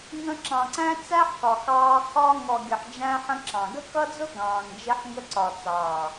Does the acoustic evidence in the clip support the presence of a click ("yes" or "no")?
yes